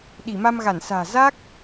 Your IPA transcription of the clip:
ɗi˧˩ma˧mɣa˧˩nsa̤ː˨˩ za˦˥k̚

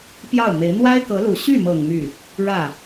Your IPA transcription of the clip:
pjɑ˥˩ʊ̯me˧˥ɪ̯ n̪wa˥ɪ̯kɤ˧˥lu˨˩ ɕy˥˩mɤ˨˩ŋ my˥˩ | ɻä˥˩

